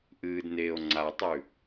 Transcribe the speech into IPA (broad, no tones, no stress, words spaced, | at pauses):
ʔɨːdneːo̯ ŋ͡ǀatˤʉ